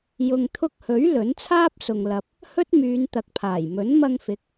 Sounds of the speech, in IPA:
jʊ˨ŋt̪ʰʊ˧k̚hɵ˨˥ɥ lɵ˨˥nt͡sʰaː˥p̚ sʊ˨ŋ lɐ˨p̚ | hɵ˥t̚myː˨˧nt̪ɐ˨k̚pʰaː˨˩j mɵ˨˥nmɐ˧ŋfɪ˨˥k̚

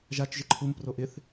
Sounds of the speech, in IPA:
ʒat͡ʃ ʒɪǃʰum proʔɪθ

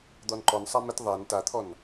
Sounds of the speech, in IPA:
d̪ɔnǃɔnsˤa mɪt ðˤɛn tat̪ʰɔn

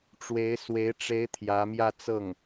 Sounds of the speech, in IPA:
ʈ͡ʂwe˧˥ɪ̯swe˧˥ɪ̯ʈ͡ʂe˧˥ɪ̯ t̪ʰjä˧˥mjä˥˧t͡sɤ˥˩ŋ

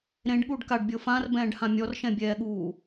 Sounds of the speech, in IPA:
ɾẽɖɠuːɖ kaɖbʲɤ fãrbɛ̃ːɖhã mʲɔrʃɛ̃bʲɛːɠuː

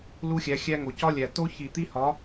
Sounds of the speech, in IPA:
lu˦xʲæ˨˦xʲæ˦ŋo˨ cɒ˦lʲæ˨ to˦çi˨t̪i˦hɒ˨˦

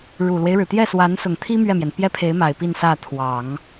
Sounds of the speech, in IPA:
ɻu˨˩lwe˦ɪ̯ɻɻ̩˩ t̪jɛ˥˩swa˧˥nsʊ˨˩ŋt̪ʰi˥ mɥɛ˥˩mjɛ˩n pjɛ˥pʰe˧˥ɪ̯ ma˨˩ɪ̯pi˥˧nsä˥˩ t̪ʰwɑ˨˩˦ŋ

